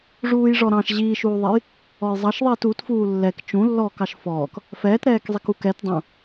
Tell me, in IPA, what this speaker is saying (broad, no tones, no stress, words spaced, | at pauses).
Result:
ʐuːjʐɔɾɑ̃ʃ ʑiːʃuːðˤɛj | ɔjzˤɑʃðˤiːt utfuː lːɛk t͡ʃũlːɔːk ɑʃfɔːk | fɛːtɾɛːkzˤik ukɛt dˤũ